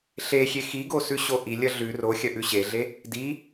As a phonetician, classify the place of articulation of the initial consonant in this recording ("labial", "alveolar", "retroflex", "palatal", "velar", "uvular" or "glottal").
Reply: alveolar